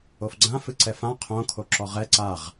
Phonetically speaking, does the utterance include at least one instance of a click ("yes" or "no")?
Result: yes